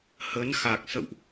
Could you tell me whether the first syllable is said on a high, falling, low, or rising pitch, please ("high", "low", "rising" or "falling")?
rising